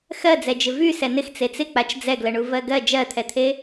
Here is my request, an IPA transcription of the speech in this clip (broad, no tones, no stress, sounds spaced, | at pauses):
x ɜ d͡z ɛ d͡ʒ ɪ v y s ɛ n ɪ x t͡s e t͡s ɪ k͡p a t͡ʃ d͡z ɛ ɡ l ə ɳ u v ɜ ɡ ɜ d͡ʒ ɜ t̪ʰ ɛ t̪ʰ e